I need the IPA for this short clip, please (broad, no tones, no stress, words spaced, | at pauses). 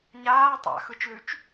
ɲaː tˤa̰xɯt͡ʃlʉt͡ʃ